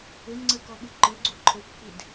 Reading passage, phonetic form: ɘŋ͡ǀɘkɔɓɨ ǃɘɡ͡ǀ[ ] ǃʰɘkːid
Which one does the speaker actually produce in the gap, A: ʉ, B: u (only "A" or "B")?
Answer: B